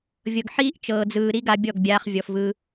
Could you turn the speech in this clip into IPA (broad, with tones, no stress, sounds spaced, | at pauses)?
vʲ ɤ˨ ɡ ħ iː˦ ʔ t͡ʃ ɤː˨ d͡z ɯː˨ ɾ i˦ ɡ a˧ bʲ ɔ˦˨ ɡ bʲ aː˧ χ vʲ ɔ˨ f v ɯ˧